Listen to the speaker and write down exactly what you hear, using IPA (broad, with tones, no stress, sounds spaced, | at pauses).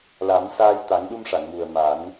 l a˨˩˦ m s aː˧ j t̪ a˨˩˦ ŋ ɗ u˧ m ʂ a˨˩˨ ŋ m u˨˩ ə̯ m a˨˩˦ n